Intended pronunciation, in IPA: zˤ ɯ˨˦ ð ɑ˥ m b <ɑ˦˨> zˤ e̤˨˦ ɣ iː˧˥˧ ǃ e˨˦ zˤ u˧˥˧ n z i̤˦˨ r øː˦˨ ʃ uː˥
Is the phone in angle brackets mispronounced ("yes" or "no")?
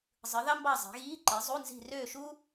no